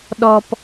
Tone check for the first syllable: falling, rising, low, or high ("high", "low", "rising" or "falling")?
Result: low